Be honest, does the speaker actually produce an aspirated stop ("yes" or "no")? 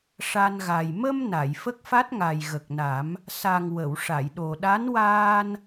no